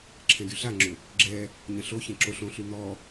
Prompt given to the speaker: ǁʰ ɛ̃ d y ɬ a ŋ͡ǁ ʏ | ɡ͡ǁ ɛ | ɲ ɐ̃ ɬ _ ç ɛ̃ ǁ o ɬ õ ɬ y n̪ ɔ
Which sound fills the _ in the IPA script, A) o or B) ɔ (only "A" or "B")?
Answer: A